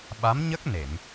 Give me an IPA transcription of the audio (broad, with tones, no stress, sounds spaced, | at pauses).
ɓ a˧˥ m ɲ ə˦˥ k̚ n e˨˩˨ m